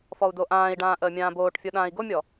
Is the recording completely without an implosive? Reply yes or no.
no